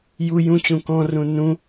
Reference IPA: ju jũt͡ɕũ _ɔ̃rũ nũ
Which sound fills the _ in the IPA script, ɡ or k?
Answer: k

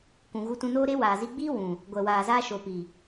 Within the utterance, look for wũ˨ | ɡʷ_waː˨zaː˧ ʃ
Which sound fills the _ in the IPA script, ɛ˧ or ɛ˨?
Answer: ɛ˨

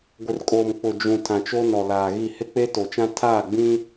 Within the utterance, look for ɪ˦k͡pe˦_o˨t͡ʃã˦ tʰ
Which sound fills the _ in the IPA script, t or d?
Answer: t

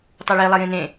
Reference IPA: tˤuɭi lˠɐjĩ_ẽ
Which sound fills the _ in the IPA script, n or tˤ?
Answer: n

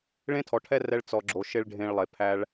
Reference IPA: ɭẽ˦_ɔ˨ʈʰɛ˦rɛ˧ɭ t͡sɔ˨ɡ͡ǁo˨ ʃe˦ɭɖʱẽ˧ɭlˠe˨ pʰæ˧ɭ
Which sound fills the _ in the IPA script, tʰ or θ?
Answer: tʰ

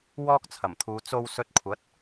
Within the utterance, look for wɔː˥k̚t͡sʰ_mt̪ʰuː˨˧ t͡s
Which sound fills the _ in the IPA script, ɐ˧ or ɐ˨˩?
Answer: ɐ˨˩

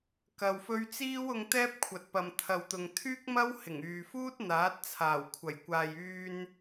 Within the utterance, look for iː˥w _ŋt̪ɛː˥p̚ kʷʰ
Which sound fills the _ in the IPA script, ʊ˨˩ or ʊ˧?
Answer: ʊ˧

